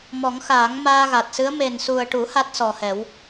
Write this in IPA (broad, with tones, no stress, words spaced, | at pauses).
mɔ˨˩˦ŋxaː˨˩˦ŋ maː˧ɣa˨˩t̚sɨ˧˥ə̯ me˨˩nsu˨˩ə̯ʈu˨˩˦ ha˦˥t̚sɔ˨˩hɛ˨˩˦w